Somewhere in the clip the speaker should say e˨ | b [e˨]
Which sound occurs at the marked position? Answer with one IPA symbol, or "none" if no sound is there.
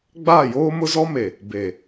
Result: e˨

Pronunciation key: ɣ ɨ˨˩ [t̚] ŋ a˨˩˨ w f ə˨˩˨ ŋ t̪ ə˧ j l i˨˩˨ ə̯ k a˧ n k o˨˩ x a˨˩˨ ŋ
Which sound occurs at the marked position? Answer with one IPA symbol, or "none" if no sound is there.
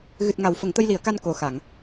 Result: t̚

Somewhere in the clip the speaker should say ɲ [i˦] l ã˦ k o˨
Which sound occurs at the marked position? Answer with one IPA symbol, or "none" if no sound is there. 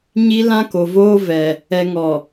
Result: i˦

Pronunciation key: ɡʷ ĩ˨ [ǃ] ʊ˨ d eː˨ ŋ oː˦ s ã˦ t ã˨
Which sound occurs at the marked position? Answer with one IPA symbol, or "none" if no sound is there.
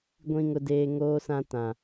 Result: ŋ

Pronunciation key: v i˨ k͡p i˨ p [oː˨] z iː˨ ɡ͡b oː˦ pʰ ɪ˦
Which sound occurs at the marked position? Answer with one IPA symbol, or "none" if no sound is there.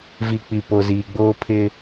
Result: o˨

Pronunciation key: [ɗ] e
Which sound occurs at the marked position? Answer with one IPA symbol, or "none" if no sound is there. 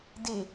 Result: d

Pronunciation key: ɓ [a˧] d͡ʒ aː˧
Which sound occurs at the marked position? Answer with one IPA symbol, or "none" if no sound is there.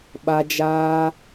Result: a˧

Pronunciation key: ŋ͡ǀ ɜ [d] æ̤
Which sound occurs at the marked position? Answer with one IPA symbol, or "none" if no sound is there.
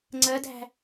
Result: d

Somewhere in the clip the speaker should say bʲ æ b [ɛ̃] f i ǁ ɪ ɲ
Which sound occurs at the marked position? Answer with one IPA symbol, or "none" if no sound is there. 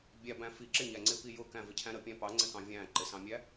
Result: æ̃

